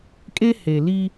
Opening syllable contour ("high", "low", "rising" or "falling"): high